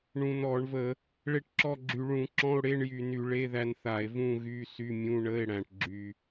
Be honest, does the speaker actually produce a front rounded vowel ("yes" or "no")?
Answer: yes